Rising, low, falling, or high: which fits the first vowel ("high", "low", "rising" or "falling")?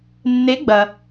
rising